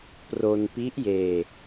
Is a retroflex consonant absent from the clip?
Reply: yes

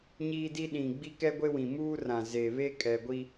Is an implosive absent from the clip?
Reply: no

